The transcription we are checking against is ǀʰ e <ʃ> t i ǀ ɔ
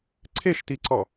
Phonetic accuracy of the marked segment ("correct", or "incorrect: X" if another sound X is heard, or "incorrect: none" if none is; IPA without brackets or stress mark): correct